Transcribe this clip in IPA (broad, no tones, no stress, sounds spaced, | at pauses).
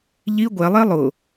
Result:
ʎ i ɡʷ ɛ lˠ e lˠ ʊ